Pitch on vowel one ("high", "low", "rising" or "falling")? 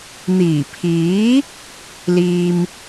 low